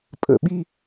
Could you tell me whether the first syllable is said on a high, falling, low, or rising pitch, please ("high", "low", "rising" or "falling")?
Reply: low